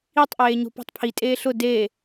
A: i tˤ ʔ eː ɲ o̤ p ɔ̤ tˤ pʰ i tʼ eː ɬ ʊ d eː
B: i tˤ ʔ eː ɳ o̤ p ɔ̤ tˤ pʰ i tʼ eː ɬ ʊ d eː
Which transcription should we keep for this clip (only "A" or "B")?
A